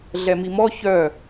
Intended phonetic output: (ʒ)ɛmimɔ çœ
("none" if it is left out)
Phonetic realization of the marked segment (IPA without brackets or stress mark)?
ɮ